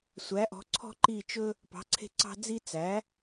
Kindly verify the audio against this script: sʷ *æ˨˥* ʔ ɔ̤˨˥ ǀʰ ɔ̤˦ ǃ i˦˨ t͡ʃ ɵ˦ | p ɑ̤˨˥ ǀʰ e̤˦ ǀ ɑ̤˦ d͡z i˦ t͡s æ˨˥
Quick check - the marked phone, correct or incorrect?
correct